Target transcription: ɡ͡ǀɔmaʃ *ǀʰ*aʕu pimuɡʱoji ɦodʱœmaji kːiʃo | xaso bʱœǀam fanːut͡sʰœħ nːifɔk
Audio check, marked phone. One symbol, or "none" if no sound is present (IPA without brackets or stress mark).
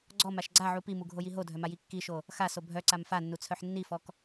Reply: ɡ͡ǀ